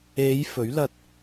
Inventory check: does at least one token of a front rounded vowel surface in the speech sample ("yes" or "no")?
no